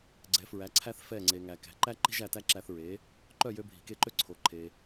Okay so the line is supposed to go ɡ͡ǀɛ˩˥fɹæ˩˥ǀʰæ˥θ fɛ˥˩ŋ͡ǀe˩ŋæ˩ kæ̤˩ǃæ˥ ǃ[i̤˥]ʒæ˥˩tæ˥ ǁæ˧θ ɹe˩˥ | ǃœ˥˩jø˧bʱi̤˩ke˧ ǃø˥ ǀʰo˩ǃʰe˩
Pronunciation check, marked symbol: correct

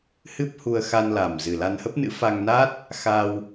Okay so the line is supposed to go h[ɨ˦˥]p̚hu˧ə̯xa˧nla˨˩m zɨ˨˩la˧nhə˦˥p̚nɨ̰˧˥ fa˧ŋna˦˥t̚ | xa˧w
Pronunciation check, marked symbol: correct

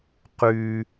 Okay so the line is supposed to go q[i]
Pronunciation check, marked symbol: incorrect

